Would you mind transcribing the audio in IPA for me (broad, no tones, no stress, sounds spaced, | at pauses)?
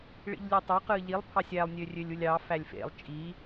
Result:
ɭ ḭ ʎ lʲ ø tˤ o q ɯː ʎ i lˠ pʰ ɑ sʲ æ lˠ nʲ ø rʲ ø lʲ u lʲ ɑ f æ lʲ f ḛ lˠ t͡ʃʼ i